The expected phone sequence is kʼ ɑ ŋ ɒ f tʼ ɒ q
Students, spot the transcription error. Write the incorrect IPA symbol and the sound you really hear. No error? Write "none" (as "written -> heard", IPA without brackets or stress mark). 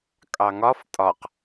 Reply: none